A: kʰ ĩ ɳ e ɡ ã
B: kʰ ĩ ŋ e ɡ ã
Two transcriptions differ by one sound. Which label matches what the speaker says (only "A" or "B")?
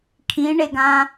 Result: A